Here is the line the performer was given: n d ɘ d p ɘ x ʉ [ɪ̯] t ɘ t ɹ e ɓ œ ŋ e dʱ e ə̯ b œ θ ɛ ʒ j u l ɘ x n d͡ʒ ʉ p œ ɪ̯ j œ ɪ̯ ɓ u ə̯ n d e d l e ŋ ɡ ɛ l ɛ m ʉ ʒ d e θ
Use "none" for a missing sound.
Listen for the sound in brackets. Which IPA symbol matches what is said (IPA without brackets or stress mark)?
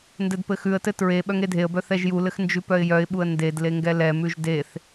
ə̯